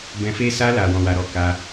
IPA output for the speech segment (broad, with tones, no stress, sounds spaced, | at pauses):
b ɛ̃˧ f e˦ s a˧ l a˨ w ɔ̃˧ w a˧ ɾ ɔ˧ k a˧